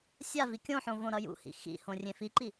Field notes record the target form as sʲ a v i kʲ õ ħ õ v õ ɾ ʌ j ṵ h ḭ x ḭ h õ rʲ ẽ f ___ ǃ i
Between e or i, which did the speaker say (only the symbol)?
i